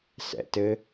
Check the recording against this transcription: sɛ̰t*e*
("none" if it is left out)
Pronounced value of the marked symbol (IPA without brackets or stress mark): ɘ